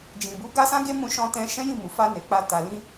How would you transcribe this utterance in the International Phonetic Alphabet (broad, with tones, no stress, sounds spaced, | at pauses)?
d͡ʒ ĩ˨ b u˨˦ ɡ a˦ s ã˦ ɡ e˦ m ũ˧ ʃ ɔ̃˧ t ɛ̃˧ ʃ ɛ̃˦ j ĩ˦˨ m u˨ f a˧ n e˨ k͡p a˧ t a˨ l ĩ˧